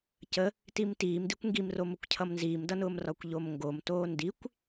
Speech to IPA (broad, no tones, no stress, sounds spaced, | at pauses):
c ə | t i m t iː m d i kʷ ŋ ɡ i m r o m ʊ kʷ cʰ ʌ m n z iː m d ʌ n ʊː m r ɒ kʷ ʎ o m ŋ ɡ o m t oː n d i kʷ